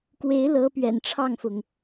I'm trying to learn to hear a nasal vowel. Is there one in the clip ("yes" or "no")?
no